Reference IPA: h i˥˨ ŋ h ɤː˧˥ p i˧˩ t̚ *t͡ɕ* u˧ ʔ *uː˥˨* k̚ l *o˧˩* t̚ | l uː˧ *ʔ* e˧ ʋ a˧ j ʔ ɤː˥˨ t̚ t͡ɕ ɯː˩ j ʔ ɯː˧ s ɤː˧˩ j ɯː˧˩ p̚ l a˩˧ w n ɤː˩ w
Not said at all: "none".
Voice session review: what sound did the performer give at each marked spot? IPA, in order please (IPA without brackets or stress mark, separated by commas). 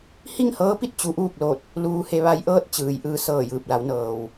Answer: t͡ɕ, uː˥˨, o˧˩, h